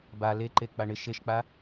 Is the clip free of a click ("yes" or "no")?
no